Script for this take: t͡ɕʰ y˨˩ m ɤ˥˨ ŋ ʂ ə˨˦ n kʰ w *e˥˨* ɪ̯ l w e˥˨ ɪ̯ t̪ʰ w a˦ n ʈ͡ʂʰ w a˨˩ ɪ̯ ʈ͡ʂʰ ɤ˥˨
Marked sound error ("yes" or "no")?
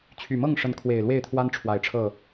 yes